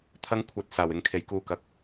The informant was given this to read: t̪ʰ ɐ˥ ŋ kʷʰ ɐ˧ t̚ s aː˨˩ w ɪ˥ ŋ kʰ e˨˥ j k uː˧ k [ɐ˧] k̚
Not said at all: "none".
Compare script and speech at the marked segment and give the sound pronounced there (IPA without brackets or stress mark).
ɐ˧